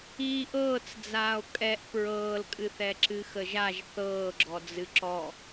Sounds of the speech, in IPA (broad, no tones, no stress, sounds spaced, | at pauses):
iː ʔ ɤː t͡s d͡z aː o̯ kʼ ɛ ʔ p ɹ ɤː l kʼ ɨ θ ɛ ǁ ɨ x ə ʒ a ʒ θ ɤː ɡ͡ǁ ɔ d͡z ɨ ǁ ɔ